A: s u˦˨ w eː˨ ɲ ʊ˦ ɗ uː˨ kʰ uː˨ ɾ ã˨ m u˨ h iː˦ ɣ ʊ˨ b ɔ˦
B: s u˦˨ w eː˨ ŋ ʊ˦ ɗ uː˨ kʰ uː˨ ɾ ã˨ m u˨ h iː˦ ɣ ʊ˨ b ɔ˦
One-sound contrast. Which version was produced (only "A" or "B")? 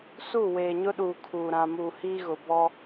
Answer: A